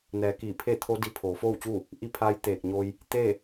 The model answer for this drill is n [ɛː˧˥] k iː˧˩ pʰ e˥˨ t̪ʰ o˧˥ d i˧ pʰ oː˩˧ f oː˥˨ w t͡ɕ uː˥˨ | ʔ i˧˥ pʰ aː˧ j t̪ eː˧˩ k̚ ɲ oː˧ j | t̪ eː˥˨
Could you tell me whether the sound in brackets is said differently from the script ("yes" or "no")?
yes